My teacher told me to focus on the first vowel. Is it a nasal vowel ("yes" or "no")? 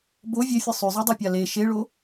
no